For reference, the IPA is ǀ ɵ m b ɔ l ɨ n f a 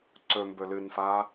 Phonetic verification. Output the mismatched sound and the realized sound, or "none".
ɔ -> ɵ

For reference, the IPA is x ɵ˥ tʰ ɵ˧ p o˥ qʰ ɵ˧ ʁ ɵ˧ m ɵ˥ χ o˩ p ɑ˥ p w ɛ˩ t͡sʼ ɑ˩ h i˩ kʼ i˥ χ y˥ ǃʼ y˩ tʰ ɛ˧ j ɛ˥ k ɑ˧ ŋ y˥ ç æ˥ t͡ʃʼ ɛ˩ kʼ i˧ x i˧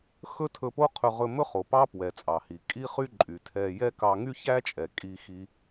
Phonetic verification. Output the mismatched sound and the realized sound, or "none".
none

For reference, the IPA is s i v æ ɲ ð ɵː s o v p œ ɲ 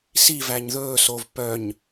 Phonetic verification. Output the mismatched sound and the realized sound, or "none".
none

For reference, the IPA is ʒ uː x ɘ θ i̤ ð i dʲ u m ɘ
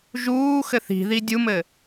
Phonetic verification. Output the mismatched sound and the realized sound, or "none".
none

